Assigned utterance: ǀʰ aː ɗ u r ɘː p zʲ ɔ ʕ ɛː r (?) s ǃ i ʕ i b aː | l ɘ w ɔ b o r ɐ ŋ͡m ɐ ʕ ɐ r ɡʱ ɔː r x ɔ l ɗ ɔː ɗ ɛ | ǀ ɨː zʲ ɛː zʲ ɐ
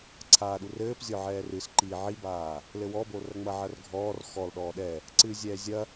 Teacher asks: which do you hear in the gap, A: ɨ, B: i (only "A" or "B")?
A